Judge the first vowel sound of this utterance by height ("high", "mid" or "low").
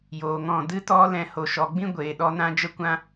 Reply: mid